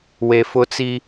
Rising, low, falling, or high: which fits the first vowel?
low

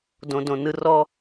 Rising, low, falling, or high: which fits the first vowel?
low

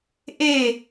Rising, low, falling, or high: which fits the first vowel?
falling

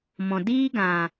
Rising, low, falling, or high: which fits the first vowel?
low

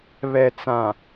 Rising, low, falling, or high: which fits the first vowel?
low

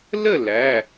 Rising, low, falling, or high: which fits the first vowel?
falling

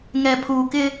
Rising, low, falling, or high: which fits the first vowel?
low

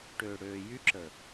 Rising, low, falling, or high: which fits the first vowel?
low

